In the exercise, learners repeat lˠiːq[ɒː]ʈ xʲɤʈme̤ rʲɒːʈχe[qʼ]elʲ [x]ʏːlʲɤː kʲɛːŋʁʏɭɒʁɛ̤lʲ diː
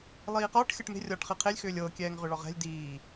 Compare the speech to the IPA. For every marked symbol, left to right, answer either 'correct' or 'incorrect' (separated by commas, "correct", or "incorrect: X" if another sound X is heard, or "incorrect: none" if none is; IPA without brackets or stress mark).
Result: correct, incorrect: qʰ, correct